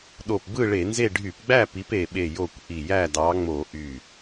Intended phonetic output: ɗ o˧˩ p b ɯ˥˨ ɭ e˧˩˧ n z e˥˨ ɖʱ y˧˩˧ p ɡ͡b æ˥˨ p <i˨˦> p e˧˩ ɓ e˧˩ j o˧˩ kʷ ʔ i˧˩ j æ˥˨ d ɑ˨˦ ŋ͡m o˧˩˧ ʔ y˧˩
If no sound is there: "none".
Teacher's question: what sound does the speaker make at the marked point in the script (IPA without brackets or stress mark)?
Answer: i˨˦